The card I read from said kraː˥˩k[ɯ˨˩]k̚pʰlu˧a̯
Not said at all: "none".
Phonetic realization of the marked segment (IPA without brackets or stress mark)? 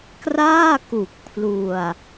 u˨˩